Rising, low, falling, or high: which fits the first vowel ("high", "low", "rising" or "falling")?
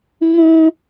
high